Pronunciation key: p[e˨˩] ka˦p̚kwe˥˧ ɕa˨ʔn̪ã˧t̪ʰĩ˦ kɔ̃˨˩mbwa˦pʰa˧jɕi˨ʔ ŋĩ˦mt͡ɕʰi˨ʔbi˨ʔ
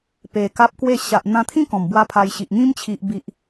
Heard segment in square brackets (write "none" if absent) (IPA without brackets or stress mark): e˨˩